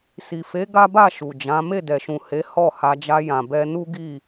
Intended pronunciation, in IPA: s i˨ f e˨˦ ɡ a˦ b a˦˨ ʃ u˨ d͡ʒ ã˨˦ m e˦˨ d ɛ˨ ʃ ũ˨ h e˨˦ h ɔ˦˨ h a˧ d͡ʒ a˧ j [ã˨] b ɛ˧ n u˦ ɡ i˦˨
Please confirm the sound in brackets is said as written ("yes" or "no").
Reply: yes